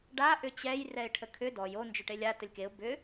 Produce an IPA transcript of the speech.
ɖa ʔʏt͡ɕɛj rɛɪ̯ʈʰəkʰʏ dɔj o nd͡ʒʏʈelʲa təlʲkeʊ̯ bʏ

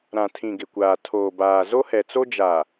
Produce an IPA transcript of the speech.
ɾã˨tʰĩ˨ ɡɪ˨kʷaː˨ tʰoː˨baː˨ zo˦hɛ˨t͡so˦ d͡ʒa˨

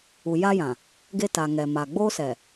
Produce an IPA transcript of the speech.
u˨ja˦jã˨ | ɡe˦ta˨ŋɛ˨ma˨ ɡ͡boː˦sɛ˨

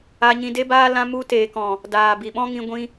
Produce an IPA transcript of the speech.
a˧ɲĩ˧de˦baː˦ lã˧ mu˧ teː˨kɔ̃˨ | daː˨bi˨ɓɔ̃˦ŋĩ˧ ɡʷĩ˧

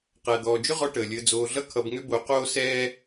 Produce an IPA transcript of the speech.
qæ˨d̪ɔː˨d͡ʒʏ˦ʁɔ˧ ʈəː˨lʲəː˧d͡zoː˧ ɮʌ˦kʰʌ˧bŋʏ˦ bo˧ qoː˦sɛː˦

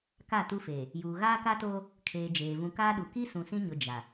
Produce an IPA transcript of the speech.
ka˦˨tu˦feː˨ | juː˨ɣaː˦ka˦toː˦ | kʰeː˨ d͡ʒeː˨ vũ˨kaː˦ɗu˨ ki˦ sũ˨sĩ˦ɲʊ˨ d͡ʒa˨

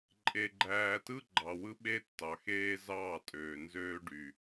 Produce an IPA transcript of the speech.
ǃʼe˨ɡ͡ǃæː˨tɯ˦ ɡ͡ǃɑ˨wɯ˦ɓe˦ tːɑ˨xeː˦zɑː˦˨tʼøː˨ nzøː˦ɖy˨

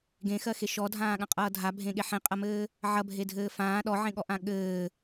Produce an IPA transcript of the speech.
ɡẽxɜxe ʃɔdʱãːɠãqʼʌː dʱabʱẽɠe ħẽqʼɐmɘː | ʕɐbʱedʱɘː fãː ɗɔʕẽɠɔʔã ɠɘː

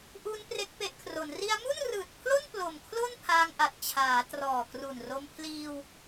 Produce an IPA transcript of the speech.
ʔu˧n pre˦˥k̚pe˦˥ʔkʰro˩˦n ri˧a̯mu˥˩nrɯː˨˩t̚pʰlo˥˩n plo˨˩mkʰlo˥˩n pʰaː˧ŋʔa˨˩t̚ t͡ɕʰaː˩˦trɔː˨˩kru˨˩nro˧m pʰliː˧w

